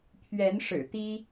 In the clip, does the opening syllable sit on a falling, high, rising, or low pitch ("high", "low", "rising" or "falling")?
rising